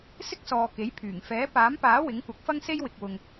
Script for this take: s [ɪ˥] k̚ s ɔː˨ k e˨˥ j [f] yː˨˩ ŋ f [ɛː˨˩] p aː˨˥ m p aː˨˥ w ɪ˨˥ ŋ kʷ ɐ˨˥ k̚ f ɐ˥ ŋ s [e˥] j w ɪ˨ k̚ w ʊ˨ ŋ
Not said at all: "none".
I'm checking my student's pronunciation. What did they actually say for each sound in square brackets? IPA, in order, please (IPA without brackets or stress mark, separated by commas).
ɪ˥, pʰ, ɛː˨˥, e˥